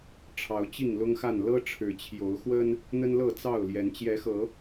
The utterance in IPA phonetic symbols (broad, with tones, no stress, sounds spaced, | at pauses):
ʈ͡ʂʰ ɑ˨˦ ʊ̯ t͡ɕ i˥˨ ŋ l ʊ˦ ŋ x a˥˨ n l ɤ˦ ʈ͡ʂʰ ɻ̩˨˦ t͡ɕʰ j o˨˦ ʊ̯ x w ə˦ n | n̪ ə˦ n l ɤ˥˨ t͡s ɑ˥˨ ʊ̯ l j ɛ˨˦ n t͡ɕ j ɛ˨˦ x ɤ˨˦